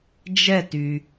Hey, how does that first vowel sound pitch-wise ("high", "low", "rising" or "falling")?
falling